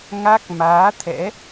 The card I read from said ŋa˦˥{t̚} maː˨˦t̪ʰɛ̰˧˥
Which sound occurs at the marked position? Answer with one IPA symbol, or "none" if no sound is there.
k̚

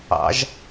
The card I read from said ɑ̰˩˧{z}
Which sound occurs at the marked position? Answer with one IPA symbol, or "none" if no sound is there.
ʒ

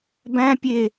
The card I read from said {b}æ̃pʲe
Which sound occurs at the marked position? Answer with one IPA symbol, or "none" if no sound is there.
b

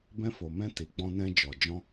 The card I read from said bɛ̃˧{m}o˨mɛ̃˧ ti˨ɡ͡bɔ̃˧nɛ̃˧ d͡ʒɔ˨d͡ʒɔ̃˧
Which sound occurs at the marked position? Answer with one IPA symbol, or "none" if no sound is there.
f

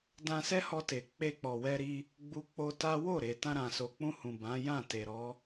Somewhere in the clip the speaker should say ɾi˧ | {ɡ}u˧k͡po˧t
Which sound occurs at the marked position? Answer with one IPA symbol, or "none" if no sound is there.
ɡ͡b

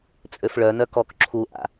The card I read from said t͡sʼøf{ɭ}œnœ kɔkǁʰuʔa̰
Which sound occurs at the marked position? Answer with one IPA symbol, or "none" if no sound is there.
ɭ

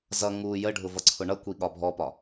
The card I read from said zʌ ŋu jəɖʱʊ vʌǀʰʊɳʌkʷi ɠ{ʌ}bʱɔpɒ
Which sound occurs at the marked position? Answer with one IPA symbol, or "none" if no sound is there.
ɒ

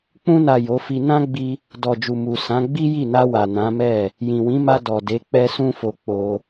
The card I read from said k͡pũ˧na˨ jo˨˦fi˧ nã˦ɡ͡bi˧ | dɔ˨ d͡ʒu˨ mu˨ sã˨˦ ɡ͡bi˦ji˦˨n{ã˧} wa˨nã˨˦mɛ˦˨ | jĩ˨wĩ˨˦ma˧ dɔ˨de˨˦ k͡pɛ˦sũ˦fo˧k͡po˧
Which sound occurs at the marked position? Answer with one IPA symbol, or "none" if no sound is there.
a˧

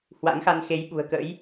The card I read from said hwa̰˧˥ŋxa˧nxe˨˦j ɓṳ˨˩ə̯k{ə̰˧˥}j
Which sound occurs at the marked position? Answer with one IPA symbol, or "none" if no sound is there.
ə̰˧˥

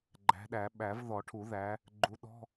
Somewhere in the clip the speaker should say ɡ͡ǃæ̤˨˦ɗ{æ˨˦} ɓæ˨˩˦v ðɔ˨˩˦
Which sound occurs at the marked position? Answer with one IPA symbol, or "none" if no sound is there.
æ˨˩˦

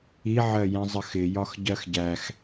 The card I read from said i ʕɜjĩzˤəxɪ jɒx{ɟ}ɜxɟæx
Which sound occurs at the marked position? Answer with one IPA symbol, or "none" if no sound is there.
ɟ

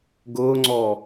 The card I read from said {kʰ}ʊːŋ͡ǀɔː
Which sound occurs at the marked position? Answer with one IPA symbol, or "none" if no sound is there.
ɡ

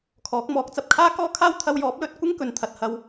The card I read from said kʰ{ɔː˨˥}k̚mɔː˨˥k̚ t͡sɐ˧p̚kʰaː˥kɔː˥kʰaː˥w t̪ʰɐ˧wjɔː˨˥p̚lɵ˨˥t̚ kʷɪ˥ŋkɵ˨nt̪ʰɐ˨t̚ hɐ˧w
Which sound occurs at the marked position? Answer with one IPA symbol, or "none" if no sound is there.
ɔː˨˥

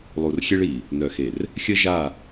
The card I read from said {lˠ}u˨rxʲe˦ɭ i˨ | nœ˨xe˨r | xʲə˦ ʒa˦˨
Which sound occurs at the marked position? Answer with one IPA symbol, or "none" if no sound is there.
lˠ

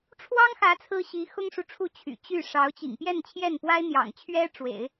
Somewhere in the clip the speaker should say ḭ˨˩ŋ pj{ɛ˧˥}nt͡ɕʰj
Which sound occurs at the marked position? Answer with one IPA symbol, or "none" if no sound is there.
ɛ˥˧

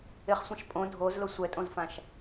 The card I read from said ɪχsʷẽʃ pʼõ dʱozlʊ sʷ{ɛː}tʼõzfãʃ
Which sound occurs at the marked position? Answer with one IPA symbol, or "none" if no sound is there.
ɛ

